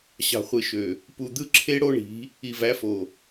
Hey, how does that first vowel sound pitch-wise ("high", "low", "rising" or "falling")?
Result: low